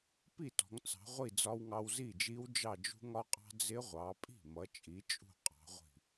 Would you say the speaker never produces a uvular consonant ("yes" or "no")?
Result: no